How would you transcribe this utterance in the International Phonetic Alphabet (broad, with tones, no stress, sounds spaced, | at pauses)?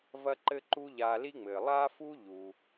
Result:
v ɐ˥ ǃ ɘ˥ ǃ u˥ ʎ aː˧ l i˥ ŋ͡m ɘː˩ lˠ a˥ f u˥ ʎ u˩